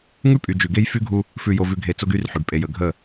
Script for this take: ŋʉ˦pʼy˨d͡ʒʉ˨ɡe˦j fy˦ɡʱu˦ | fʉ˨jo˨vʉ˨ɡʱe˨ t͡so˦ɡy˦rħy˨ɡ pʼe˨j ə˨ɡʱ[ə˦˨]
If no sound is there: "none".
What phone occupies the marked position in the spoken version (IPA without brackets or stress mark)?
ə˦˨